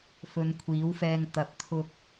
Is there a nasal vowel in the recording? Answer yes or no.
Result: no